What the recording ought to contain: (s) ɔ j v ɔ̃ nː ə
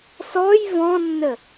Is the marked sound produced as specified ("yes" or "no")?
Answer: yes